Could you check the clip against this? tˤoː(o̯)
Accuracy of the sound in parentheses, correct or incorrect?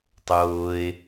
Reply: incorrect